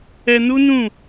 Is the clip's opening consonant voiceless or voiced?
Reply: voiced